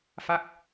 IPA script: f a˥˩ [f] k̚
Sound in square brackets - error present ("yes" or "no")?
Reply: yes